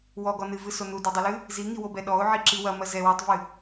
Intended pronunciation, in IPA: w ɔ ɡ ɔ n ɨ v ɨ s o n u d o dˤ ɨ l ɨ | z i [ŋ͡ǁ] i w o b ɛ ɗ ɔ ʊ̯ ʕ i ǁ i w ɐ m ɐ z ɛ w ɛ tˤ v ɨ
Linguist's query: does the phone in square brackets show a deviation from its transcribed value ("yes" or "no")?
yes